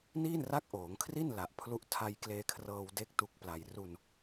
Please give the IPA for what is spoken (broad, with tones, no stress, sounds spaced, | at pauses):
n iː˥˩ n r a˦˥ k̚ ʔ oː˩˦ ŋ kʰ r i˥˩ n l a˨˩ ʔ pʰ l u˥˩ ʔ tʰ a˧ j k l eː˧ kʰ r ɤː˧ w d e˦˥ k̚ t u˦˥ k̚ p l a˧ j r u˧ n